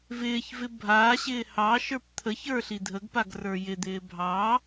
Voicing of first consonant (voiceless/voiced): voiced